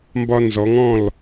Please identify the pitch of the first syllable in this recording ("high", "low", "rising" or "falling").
high